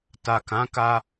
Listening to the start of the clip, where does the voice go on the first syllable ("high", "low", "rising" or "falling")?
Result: low